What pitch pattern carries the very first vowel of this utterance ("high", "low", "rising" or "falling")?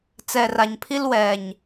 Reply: low